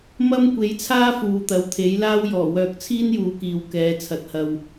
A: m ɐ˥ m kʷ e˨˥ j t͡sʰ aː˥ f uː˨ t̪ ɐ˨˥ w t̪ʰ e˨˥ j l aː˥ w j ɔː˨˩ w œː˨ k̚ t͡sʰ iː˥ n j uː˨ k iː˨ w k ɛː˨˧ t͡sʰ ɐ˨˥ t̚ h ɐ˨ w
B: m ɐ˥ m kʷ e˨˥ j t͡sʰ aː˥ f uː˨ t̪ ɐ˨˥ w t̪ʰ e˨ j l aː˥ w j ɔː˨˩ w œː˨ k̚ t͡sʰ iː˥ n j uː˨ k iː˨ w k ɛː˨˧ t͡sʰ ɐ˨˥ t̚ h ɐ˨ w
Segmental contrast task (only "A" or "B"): A